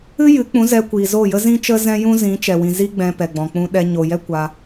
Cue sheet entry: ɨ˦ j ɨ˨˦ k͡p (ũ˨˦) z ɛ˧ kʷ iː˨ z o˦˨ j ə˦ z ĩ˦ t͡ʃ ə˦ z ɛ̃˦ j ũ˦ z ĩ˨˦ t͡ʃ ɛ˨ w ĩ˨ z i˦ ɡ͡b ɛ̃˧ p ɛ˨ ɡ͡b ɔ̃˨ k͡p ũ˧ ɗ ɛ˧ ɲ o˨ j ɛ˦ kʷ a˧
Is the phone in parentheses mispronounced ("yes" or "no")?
no